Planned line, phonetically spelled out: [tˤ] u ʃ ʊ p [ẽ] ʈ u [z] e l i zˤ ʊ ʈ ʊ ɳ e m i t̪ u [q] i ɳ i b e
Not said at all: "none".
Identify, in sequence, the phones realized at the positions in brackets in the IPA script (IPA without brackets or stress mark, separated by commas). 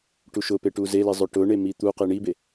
ʈ, e, z, q